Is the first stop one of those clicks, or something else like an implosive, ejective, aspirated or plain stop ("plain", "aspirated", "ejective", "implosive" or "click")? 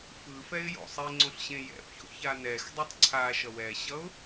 click